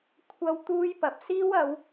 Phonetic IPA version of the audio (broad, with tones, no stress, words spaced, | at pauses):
kʷʰɐ˥wt̪uː˥jpɐ˨p̚ siː˥wɐ˨˧w